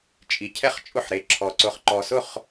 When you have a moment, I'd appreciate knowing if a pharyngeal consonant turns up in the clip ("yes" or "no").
yes